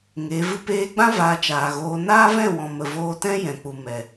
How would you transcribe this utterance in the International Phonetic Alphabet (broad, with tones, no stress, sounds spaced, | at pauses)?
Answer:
ŋ e˨˦ v ɨ˦ p eː˧ ɡ͡b ã˦ v aː˧ t͡ʃ aː˨ ɣ oː˧ n aː˦ v ɛ̃˦˨ w ɔ̃˨ m ə˨ v oː˧ t ɛ̃˦ j ɛ̃˨ k͡p u˨ m ɛ˨